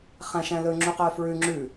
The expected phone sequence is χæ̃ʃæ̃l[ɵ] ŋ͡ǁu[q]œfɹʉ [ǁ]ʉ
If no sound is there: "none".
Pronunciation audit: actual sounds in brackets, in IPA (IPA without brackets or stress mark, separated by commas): ɵ, q, ŋ͡ǁ